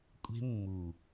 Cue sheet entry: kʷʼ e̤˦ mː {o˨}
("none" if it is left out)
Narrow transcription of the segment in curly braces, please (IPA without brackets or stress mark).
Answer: u˨